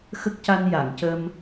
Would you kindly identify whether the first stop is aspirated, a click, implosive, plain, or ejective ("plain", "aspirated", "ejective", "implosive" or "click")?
plain